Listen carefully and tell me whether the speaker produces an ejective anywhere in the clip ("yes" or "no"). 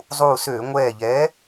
no